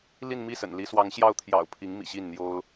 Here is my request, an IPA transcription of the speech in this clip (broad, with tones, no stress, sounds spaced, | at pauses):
l i˥˧ n m i˥˩ s ə̰˨˩ n l i˧˥ s w ɑ˧˥ ŋ ɕ j ɑ˥˩ ʊ̯ t̪ʰ j ɑ̰˨˩ ʊ̯ pʰ i˧˥ ŋ m ḭ˨˩ ɕ i˥˩ n n̪ j o˥ ʊ̯